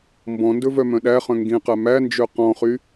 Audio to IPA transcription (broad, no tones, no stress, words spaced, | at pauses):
mbɔ̃ndɵ vœmœ̃ɗæχœ̃ ŋɡĩqæ mænd͡ʒø qɔ̃χy